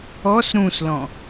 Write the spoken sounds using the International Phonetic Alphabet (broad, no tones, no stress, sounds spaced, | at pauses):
ɔ s ɾ ũ s l ɔ̃